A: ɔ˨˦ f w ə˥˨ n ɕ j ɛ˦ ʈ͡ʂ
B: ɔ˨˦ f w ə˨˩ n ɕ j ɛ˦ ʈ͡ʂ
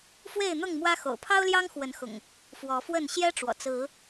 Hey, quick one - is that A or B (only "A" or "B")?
A